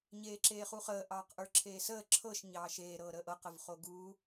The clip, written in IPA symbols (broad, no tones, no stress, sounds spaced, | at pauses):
ɲ eː ǁ eː χ u χ əː ʔ ɑː q ʔ ə˞ ǁʰ eː s əː ǁʰ ɤ ʃ ɲ ɑː ʃ eː ɾ ɤː ɾ əː ʔ ɤ q ə v χ o ɡ uː